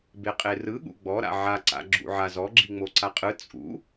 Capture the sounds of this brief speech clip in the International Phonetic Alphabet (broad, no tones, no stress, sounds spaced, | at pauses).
b e qʼ e r ɯ ɠ ṵ ɡ͡b ɔ ɾ a̰ ʕ a ǀ a̰ ɡ͡ǁ ṵ ʕ a z ɔ ɡ͡ǁ i ŋ͡m o ǀ a qʼ ɯ t͡sʼ ṵ